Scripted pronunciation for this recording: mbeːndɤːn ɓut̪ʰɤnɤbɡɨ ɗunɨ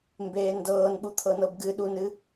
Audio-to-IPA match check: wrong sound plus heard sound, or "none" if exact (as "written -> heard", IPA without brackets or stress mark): none